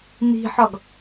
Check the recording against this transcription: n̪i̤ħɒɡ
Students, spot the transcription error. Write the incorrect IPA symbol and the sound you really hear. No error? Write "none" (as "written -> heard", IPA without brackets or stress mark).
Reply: none